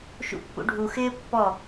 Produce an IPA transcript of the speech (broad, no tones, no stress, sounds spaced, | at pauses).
ʃ ṵ pː ṵ ɖʱ u x ɪː pː ɔ